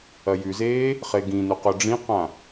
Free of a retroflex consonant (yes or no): no